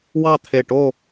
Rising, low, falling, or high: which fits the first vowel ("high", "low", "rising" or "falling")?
falling